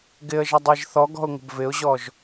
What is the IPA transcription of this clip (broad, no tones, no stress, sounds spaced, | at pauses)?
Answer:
ɡ ɪ ə̯ ʒ ʌ dˤ e ʒ θ ɔ ɡ ɔ̤ ʊ̯ ŋ ə̤ b v ɪ ʊ̯ ʑ ɔ ʒ